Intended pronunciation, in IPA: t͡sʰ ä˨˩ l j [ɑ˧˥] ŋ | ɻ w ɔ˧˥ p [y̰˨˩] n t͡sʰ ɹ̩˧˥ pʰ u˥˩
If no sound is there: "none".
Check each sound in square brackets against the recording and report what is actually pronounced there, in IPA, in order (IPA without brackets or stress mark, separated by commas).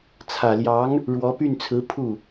ɑ˧˥, y˥˩